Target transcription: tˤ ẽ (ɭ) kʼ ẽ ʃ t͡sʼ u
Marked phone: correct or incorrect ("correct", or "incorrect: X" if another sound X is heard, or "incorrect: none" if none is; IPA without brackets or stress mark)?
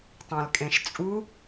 incorrect: l